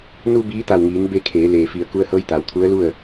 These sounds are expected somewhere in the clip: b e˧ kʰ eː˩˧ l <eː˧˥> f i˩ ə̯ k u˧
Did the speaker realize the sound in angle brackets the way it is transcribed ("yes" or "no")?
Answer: no